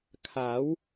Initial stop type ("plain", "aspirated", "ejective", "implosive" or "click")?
aspirated